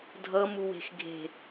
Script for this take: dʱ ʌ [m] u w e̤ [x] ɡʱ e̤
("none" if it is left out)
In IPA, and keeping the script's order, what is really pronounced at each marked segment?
m, x

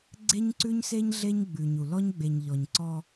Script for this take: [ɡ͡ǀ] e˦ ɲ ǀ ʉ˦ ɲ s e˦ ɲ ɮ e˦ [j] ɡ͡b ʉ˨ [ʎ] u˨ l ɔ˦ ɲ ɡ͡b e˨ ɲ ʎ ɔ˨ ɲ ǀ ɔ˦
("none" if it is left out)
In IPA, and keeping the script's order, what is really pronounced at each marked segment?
ɡ͡ǀ, ɲ, ɲ

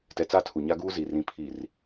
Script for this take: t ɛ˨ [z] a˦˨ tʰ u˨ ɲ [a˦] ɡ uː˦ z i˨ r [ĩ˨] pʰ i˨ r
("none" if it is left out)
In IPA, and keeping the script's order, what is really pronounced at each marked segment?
t͡s, a˦, ĩ˨

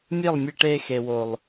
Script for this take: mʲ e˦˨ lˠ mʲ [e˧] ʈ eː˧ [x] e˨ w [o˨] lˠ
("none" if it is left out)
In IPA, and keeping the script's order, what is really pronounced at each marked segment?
e˧, x, o˨

